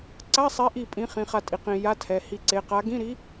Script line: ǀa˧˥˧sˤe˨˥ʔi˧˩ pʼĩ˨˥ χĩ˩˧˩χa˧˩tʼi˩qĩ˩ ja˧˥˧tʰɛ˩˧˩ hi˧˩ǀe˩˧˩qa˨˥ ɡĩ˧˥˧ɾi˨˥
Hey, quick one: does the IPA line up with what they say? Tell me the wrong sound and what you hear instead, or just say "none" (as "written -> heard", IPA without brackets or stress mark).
none